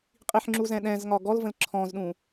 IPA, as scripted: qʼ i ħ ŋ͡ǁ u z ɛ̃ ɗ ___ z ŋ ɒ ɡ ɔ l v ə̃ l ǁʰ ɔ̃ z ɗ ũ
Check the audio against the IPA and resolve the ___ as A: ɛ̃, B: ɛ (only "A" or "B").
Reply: A